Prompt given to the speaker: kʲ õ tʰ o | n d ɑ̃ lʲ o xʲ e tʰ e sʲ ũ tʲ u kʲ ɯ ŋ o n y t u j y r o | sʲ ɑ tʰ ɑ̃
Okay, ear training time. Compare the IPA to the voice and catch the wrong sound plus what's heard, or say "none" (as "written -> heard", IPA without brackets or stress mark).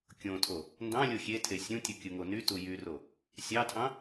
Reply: none